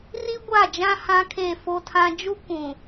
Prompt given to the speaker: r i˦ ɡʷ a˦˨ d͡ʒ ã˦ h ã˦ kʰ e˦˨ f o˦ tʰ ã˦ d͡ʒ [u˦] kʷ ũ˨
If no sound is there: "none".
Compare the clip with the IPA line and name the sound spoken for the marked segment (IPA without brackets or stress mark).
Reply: u˦